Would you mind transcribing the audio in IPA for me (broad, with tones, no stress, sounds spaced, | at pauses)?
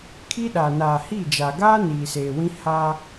kʰ i˦ ɗ aː˨ n aː˨ h i˦˨ d͡ʒ aː˨ ɡ aː˦ n iː˨ s eː˨ w ĩ˦ h aː˦